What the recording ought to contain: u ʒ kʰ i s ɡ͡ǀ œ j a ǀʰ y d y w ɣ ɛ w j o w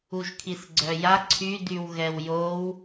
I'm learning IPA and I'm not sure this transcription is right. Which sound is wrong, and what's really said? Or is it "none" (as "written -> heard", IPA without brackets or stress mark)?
none